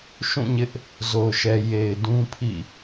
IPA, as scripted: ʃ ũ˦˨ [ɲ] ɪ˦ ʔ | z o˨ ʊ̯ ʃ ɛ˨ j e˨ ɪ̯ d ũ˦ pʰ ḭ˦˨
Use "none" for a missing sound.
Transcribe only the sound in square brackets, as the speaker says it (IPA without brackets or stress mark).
ɲ